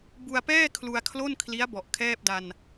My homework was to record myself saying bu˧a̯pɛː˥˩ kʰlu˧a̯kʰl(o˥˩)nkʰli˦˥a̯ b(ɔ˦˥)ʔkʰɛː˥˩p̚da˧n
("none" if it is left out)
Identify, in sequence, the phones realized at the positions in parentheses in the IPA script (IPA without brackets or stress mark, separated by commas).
o˥˩, ɔ˨˩